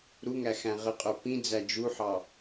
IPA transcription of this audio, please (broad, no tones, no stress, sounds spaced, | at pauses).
ɾ u ŋ æ x æ̃ ʁ ə qʼ ə˞ p ĩ d͡z æ d͡ʒ u ħ ɑ